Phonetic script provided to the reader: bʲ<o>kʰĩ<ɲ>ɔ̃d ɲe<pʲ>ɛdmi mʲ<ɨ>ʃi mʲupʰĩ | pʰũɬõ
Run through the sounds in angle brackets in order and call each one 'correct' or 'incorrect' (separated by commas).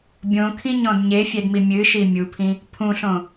incorrect, correct, incorrect, correct